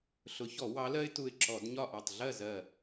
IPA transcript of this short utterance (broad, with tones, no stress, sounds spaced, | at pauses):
ɬ ʊ˨˦ ç ɔ˧˩˧ w ɑ˨˦ l ɜ˦ ɪ̯ t u˧˩ ɪ̯ ǁ ɔ˧˩˧ d ɲ ɒ˥˨ ʔ ɑ˧˩ tˤ ɮ ɜ˥˨ z ɜ˧˩